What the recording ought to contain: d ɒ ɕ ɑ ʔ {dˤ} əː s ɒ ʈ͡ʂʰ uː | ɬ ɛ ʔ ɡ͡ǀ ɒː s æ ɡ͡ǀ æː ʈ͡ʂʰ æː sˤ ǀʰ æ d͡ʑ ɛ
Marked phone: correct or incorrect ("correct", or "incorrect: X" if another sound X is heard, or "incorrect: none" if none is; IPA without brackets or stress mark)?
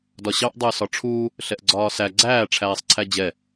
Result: correct